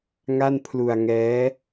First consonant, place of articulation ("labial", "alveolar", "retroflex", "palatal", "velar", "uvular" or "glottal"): velar